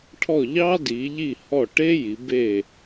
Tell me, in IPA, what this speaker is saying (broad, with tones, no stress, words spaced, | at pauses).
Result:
ʈʰɔ˦˨ʎɑ˥di˩˧ʎi˦˨ hɔ˦˨ ʈe˥ji˩˧be˦˨